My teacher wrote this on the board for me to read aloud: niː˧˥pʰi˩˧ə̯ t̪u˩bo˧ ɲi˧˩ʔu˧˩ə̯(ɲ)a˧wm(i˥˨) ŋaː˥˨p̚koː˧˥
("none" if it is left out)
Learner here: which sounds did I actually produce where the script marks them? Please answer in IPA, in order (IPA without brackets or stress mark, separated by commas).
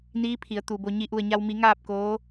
ɲ, i˩˧